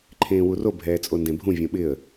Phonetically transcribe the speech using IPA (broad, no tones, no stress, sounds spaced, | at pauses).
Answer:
ǃʰ ẽː w u r o bʱ ɛː t͡sʼ o n d ẽ bʱ ũ vʲ õ ɓ ɪ ə̯